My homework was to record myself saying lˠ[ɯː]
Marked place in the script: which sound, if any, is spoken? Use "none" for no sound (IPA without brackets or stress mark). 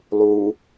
uː